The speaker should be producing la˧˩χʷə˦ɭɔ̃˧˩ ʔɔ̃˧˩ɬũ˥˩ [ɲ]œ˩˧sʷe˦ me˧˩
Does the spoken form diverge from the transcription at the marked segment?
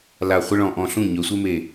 no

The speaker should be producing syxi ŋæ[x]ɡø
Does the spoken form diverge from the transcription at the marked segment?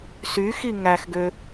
no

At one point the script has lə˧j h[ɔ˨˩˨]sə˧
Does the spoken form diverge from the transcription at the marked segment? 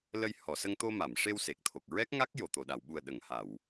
no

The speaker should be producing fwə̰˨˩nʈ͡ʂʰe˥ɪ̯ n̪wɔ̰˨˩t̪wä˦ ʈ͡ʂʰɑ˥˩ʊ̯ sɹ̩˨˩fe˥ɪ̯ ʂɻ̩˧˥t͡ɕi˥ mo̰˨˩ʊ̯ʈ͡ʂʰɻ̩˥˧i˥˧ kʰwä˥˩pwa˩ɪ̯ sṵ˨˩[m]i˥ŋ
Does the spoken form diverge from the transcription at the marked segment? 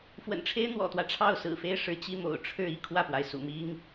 no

